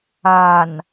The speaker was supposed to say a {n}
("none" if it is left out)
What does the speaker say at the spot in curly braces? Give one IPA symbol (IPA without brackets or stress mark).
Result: n